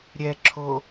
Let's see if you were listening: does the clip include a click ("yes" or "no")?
yes